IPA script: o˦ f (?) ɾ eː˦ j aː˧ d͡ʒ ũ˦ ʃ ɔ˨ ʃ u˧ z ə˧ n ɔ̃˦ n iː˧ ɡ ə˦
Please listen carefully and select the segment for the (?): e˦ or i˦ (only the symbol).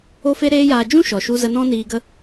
e˦